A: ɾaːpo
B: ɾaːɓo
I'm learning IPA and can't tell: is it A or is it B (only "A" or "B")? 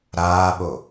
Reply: B